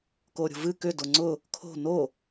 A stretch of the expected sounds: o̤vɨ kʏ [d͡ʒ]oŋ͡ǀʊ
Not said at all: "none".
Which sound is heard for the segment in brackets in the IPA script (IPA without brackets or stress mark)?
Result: d